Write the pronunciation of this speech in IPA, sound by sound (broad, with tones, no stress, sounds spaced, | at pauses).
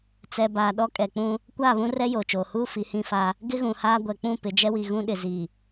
t͡s ɛ˨ b aː˨ ɗ ɔ˦ kʼ ɛ˨ k͡p ũ˦ | kʷ aː˦˨ β ũ˦ r ɛ˦ j oː˨ t͡ʃ oː˨ h uː˦ f i˨˦ h ĩ˦ f a˦ | ɡ ɪ˦ ɣ ũ˨ h aː˦ ɡʷ ɛ˨ k͡p ũ˦˨ p ɪ˨˦ d͡ʒ ɛ˦ w i˨ ɣ ũ˦ ɗ ɪ˨ z i˨